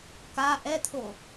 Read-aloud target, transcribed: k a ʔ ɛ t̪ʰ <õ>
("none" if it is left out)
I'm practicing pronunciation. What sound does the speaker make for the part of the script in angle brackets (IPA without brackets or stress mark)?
o